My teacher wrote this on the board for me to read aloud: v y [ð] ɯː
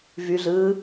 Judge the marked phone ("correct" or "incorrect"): incorrect